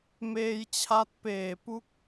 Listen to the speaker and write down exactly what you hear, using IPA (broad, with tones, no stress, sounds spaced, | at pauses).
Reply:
m eː˧ j t͡ɕʰ a˦˥ t̚ p eː˨˩ p u˥˩ k̚